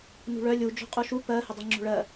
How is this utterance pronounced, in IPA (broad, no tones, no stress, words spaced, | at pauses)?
nṳɭœ lʲu d͡ʒo̤qʼuʃu pɜ hʏdˤiŋ͡ǁo̤ɭɜ